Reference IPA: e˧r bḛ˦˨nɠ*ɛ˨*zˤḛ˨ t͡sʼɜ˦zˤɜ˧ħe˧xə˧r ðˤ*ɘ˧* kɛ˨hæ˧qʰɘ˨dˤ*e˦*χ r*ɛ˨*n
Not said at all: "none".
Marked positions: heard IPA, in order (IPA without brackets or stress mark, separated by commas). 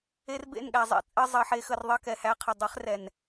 æ˨, ɘ˧, e˨˦, ɛ˨